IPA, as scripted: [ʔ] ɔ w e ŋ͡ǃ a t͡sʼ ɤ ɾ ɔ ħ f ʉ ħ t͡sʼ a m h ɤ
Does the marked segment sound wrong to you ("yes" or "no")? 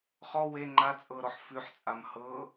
yes